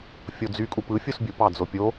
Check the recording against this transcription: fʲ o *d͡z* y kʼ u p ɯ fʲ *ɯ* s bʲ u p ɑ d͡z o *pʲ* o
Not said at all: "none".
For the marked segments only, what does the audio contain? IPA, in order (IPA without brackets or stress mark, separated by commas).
d͡z, u, pʲ